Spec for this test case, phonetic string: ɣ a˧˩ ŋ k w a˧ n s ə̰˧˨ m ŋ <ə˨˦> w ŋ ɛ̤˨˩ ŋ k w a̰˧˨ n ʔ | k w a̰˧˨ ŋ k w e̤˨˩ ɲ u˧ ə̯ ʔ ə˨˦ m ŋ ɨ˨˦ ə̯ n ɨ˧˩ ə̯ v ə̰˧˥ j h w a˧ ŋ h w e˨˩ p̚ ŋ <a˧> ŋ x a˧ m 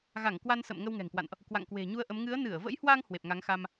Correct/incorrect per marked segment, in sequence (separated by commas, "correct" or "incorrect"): incorrect, incorrect